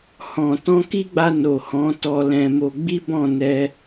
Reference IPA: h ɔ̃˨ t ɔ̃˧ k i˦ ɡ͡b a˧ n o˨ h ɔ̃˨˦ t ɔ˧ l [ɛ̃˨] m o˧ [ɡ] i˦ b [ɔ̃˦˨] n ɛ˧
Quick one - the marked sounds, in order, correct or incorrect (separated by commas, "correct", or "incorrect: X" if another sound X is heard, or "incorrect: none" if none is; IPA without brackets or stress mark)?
incorrect: ɛ̃˧, incorrect: ɡ͡b, correct